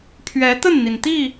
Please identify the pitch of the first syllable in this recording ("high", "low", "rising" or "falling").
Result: rising